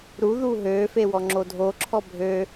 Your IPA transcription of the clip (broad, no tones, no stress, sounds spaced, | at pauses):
ɾ u ð uː ɦ øː f e w ɔ ŋ͡ǁ o dʱ o ǁʰ ɔ bʱ ø